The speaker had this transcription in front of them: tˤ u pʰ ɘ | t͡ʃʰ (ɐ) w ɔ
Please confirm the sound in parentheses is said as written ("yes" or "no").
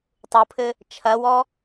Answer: yes